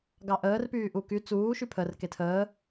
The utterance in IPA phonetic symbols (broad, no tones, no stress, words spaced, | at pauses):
ɡɑʔəːr pyːʔuky t͡suː ʃypʰər ketʰəː